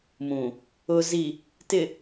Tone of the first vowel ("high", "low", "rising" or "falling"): low